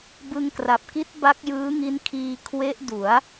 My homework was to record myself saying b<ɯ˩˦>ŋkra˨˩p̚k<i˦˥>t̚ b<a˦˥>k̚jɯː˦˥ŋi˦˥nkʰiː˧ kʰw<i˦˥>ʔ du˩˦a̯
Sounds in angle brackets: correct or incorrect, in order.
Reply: incorrect: ɯ˧, correct, correct, incorrect: e˦˥

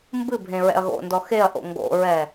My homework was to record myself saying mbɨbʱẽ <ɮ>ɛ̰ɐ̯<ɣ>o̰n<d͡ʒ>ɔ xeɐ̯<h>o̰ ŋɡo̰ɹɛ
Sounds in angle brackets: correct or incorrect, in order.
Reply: incorrect: ɹ, correct, incorrect: d, incorrect: ʔ

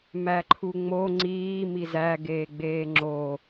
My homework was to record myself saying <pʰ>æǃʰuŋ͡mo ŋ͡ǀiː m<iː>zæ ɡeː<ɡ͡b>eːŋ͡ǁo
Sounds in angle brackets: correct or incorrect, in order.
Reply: incorrect: m, incorrect: i, correct

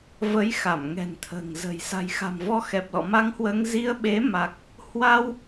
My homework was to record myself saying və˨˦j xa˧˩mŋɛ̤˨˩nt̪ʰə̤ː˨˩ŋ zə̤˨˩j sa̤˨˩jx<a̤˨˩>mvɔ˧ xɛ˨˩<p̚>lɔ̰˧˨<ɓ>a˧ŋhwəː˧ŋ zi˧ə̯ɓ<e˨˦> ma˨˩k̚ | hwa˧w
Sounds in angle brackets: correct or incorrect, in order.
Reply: correct, correct, incorrect: m, correct

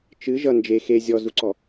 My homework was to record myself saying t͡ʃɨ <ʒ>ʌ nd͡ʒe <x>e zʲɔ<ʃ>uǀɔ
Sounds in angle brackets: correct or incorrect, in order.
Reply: correct, correct, incorrect: z

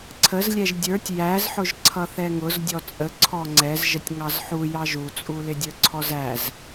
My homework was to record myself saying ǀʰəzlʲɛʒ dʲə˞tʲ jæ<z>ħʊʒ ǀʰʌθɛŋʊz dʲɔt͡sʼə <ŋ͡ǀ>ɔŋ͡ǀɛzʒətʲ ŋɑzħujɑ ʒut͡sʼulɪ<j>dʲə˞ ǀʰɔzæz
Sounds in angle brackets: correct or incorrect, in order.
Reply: correct, incorrect: ǀʰ, incorrect: none

